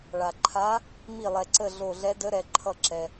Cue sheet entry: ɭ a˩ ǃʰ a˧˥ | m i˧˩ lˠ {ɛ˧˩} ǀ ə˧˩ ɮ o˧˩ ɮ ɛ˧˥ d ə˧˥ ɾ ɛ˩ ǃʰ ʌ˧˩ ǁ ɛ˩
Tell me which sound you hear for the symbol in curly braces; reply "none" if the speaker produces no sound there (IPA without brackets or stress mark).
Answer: ɛ˩